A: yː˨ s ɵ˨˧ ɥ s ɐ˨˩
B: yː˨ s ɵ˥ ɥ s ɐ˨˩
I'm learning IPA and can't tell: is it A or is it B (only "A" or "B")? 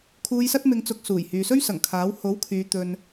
B